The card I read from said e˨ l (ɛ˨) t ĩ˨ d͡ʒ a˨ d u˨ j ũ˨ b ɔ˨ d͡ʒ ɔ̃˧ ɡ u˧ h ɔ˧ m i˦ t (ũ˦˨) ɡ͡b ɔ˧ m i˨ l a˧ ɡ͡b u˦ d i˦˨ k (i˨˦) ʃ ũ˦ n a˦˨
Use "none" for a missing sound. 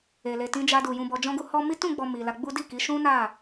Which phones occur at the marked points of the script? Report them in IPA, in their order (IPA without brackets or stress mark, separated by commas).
e˨, ũ˦˨, i˨˦